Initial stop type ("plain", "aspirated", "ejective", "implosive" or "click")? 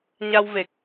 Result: plain